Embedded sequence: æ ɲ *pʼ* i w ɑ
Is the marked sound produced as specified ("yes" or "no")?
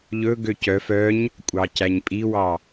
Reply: yes